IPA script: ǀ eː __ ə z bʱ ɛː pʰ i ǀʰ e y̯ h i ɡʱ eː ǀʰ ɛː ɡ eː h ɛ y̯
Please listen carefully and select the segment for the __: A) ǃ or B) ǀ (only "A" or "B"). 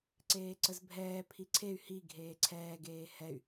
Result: B